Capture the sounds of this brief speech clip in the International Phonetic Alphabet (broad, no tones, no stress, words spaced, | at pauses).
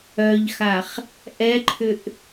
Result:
œʎxaχ | ʔɛǃʰʏʔ